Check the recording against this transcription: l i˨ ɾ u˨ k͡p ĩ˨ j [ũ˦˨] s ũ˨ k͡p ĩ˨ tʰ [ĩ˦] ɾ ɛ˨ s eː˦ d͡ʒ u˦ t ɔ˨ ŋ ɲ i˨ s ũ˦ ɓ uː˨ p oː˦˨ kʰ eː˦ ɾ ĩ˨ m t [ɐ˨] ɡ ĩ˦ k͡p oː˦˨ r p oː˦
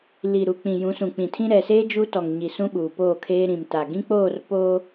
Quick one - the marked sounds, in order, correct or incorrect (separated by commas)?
incorrect, correct, incorrect